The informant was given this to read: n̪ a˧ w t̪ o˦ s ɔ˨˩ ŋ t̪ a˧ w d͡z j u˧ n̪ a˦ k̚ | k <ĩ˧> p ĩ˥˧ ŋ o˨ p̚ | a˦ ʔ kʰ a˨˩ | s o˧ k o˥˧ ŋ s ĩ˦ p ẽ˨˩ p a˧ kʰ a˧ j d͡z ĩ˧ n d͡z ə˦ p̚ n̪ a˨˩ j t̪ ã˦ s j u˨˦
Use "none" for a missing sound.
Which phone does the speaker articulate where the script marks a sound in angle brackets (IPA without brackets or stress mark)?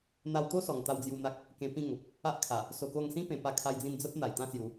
ẽ˧